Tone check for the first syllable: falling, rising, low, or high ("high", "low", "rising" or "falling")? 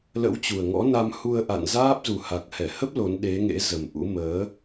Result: rising